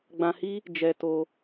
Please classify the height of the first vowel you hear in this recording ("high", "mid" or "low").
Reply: low